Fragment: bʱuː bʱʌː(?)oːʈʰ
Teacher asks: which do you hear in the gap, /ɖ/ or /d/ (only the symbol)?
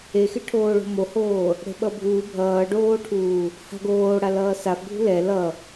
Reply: ɖ